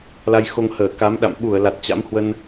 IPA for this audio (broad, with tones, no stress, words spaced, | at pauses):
la˧jxo˧ŋ həː˧˩ka˨˦mɗa̰˧˨m ɓu˧˩ə̯la˨˩t̚ t͡ɕa̰˧˥mhwə˧n